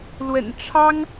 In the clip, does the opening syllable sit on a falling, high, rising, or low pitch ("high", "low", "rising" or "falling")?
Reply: low